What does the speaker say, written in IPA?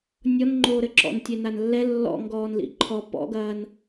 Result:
nʲ ɔ n ŋ͡ǃ oː ɾ ɘ ǁ ɔ̰ n tʲ e n a n lː ɛ lː ɔ̰ ŋ ɡ ɔː n l ḭ ǃʰ ɔ p ɔ̰ ɡ ɐː n

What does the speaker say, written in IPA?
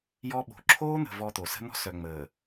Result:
j ɔ˦ ɓ o̤˨ ǁʰ oː˦ n̪ ə̤˨ v ɔ˦ t̪ o˨ s ə̤˦ n̪ ɔ̤˦ s œ˨ ŋ͡m əː˨

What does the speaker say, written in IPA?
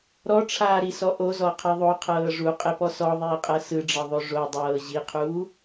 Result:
ɾ ɔ ʈ͡ʂʰ aː ɾ i s ɔ ʔ o z ɔ qʰ ɛ ðˤ o qʰ ɤː ʐ u qʼ e p ɔ s ɔ ðˤ iː qʼ ɤ s ɯ ɖ͡ʐ ɤ ðˤ o ʐ o dˤ ɤː ʑ i qʰ uː

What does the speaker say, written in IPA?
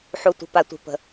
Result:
ħ u˩ tʷ ə̤˩ p a˩ tʷ i̤˩ p ə̤˩

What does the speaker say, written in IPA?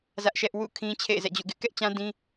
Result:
z ä˦ ʔ ʃ ɛ˦ ʔ w ṵ˦˨ kʰ ĩ˦ t͡ɕʰ ḛ˦˨ ɪ̯ z ɛ̰˦˨ d͡ʑ ṵ˦˨ ɡ ɪ˦ ʔ k ɛ˦ ʔ t͡ɕ ã˦ d ĩ˦

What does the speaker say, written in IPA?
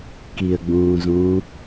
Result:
k i ə̯ ɡ͡b ũː z ũː

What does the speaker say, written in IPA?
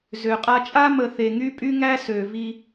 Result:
z ø˨ qʼ a˦ t͡ʃʼ a˦ m ə˨ θ e˨ ŋ y˦ pʼ y˦ ŋ æ˦ s ø˨ v i˦

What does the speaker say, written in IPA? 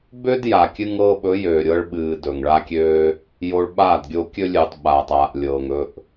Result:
b ø˦ d j a˨ kʲ ɨ˧ ŋ ɤː˧ ɓ ɵ˨˦ j øː˨ ɾʲ ɤ˧ ɭ ɓ ɨː˨ d ɵ˨ ŋ ɭ a˦ kʲ øː˦ | j o˧ ɭ ɓ aː˦˨ d ɡʲ o˧ kʲ ɵ˧ lʲ ɨː˨ tˤ ɓ aː˨ tˤ aː˨ ʔ lʲ ɤː˨ ŋ ɵ˧ ʔ

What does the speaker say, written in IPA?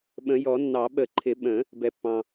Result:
ɓ ə̃˨˩˦ j ɔ˨˩˦ nː ɑ˨˩˦ ɓ ə˨˩˦ ǃʰ ɪ˨˩˦ ɓ ə̃˨˩˦ | b ɛ˩ pː ɑ̃˩

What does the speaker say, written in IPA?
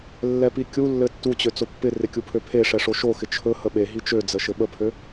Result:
lː ɛ p i kʲ u lː ɘ tː u t͡ɕ ø t͡s o pː ɪ r ɪ kʲ u pʰ ø pʰ e ʂ ɛ ʂ o ʃ o x ɪ t͡ʃʰ ɵ h ə ɓ e ɦ i t͡ʃ ø d͡z ə ʃ ɘ ɓ ə pʰ ø

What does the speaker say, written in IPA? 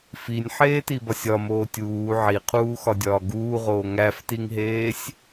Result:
f i nʲ ħ eː t i b ɒ sʲ ɒ m oː tʲ uː ʕ i qʰ uː x ɒ dʲ ɒː ɡ uː ʁ oː ŋ æ f t i ŋ ɦ eː sʲ

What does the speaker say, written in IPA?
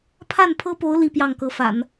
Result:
pʰ a˥˩ n pʰ ɤ˥ p o˧˥ ʊ̯ l i˥˧ p j ɑ˥˩ ŋ k ɤ˧˥ f a̰˨˩˦ n

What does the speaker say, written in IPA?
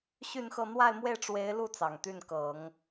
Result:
ɕ y˥˧ n x ɤ˥˧ n̪ w a˥˧ ɪ̯ m w e˥˩ ɪ̯ ʈ͡ʂ w e˧˥ ɪ̯ l u˥˩ t͡s ɑ˨˩ ŋ t̪ y˥˩ n k ɤ˨˩˦ ŋ

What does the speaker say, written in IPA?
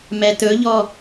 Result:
m ɛ t ɵ ʎ ɔ

